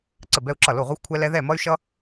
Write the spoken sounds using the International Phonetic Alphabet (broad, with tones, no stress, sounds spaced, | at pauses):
ǀ ə˧˩ b ɛ˧ u̯ ǁ ʌ˧˩ l o˧˩ ʁʷ ɛ˧ xʷ kʷʰ ɛ˧ l ɛ˧ ð ɛ˧˩ m ʌ˧ y̯ ʃ ʌ˧